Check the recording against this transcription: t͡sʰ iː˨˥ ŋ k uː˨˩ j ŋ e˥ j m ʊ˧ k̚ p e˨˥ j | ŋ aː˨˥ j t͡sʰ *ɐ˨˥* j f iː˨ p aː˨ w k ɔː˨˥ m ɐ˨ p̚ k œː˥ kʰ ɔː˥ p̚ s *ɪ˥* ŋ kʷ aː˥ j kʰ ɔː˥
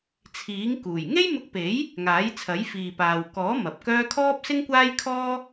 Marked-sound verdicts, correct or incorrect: correct, correct

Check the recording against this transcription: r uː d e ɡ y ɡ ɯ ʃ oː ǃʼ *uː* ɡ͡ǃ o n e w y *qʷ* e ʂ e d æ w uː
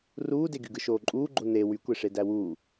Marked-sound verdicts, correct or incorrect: correct, incorrect: kʷ

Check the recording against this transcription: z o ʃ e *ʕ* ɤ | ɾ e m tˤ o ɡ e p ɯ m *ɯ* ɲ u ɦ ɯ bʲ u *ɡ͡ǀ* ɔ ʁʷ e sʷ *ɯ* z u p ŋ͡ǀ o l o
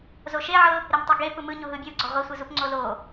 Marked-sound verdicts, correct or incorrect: correct, correct, correct, correct

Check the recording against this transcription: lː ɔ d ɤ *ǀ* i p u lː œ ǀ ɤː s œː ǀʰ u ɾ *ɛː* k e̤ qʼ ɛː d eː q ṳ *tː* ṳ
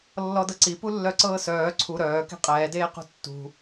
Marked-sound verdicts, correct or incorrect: correct, incorrect: œː, correct

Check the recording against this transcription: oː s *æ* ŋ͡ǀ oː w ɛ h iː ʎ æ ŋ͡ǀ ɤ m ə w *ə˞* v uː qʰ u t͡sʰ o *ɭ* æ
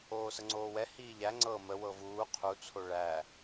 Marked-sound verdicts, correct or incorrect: incorrect: ə, incorrect: ɤ, correct

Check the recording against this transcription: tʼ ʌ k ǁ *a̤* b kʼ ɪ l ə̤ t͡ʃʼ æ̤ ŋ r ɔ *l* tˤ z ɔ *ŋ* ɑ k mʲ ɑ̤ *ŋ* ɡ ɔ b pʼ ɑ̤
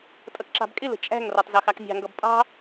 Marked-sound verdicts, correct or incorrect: incorrect: ɑ̤, incorrect: none, incorrect: x, correct

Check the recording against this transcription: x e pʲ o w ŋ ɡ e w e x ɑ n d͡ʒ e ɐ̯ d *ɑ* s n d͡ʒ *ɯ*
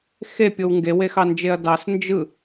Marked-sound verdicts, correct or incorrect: correct, correct

